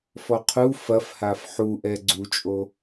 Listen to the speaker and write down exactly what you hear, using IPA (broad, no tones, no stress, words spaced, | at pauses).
fɔqʰu fɐf hafħuʔɛ ɡ͡ǀut͡ʃʼo